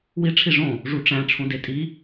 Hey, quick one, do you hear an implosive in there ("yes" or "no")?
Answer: no